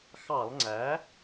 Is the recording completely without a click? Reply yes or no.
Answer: no